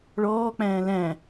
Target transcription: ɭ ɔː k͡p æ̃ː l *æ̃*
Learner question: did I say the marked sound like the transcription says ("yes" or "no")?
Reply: yes